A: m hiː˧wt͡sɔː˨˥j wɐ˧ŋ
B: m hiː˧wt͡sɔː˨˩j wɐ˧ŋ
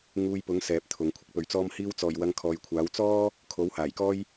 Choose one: B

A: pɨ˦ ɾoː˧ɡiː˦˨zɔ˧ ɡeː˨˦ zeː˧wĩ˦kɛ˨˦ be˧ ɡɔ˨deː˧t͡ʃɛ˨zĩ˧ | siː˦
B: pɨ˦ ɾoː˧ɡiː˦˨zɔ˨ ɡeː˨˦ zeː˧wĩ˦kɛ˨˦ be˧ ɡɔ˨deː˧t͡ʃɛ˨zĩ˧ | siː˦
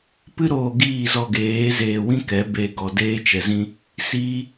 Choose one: A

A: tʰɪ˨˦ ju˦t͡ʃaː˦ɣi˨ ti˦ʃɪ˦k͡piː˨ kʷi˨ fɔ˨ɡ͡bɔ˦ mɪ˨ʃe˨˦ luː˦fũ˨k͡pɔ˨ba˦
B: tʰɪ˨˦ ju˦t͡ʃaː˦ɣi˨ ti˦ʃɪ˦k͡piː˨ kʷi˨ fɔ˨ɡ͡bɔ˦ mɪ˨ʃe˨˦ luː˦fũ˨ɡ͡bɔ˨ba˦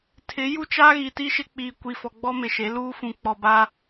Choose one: A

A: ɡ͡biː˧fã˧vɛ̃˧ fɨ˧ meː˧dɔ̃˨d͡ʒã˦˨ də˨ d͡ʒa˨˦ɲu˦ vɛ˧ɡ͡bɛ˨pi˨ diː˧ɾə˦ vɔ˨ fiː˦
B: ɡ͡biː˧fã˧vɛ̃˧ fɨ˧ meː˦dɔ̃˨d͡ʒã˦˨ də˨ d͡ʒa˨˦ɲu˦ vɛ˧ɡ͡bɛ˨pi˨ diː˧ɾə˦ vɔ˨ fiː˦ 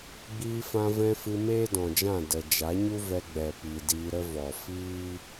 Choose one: B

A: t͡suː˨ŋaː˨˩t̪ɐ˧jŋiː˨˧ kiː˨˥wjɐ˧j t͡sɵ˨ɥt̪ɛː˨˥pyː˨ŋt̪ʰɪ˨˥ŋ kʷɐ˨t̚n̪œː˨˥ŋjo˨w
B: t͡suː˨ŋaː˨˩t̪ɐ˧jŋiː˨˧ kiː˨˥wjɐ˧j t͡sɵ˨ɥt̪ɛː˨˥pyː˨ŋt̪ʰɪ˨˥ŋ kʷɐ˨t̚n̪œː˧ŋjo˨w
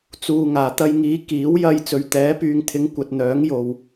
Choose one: A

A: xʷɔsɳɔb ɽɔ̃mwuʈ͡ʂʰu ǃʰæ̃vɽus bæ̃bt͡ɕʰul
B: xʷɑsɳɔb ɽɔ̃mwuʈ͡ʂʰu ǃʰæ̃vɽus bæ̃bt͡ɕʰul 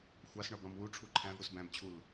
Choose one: B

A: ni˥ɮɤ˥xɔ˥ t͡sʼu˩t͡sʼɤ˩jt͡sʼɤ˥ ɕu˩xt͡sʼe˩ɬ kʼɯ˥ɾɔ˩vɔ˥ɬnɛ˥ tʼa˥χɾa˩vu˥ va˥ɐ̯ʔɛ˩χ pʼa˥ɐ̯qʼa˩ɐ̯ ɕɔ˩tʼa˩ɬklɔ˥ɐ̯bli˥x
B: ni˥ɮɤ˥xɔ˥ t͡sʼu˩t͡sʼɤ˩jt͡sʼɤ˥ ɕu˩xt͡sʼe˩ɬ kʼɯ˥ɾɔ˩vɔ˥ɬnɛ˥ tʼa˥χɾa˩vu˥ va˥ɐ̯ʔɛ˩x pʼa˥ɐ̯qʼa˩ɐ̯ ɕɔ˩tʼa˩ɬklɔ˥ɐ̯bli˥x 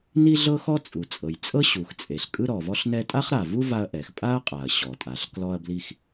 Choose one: B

